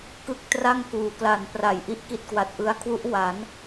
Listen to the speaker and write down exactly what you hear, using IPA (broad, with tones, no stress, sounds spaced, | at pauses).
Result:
k ɯ˦˥ k̚ t r a˥˩ ŋ k uː˩˦ k l a˨˩ n p r a˩˦ j ʔ i˥˩ ʔ k i˥˩ t̚ k w a˨˩ t̚ ʔ ɯ˦˥ a̯ kʰ w u˦˥ ʔ w a˩˦ n